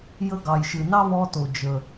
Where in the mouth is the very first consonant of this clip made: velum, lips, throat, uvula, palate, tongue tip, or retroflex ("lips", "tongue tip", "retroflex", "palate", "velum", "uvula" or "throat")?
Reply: palate